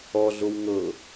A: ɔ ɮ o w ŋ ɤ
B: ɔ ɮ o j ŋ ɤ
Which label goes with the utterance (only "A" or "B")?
A